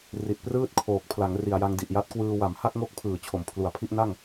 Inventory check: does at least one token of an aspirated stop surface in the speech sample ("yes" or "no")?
yes